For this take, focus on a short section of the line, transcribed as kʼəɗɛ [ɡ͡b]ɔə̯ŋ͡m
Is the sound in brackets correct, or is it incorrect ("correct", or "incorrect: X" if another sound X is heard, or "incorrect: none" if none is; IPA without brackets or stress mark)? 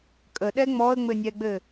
incorrect: ŋ͡m